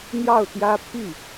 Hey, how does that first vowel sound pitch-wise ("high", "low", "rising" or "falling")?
falling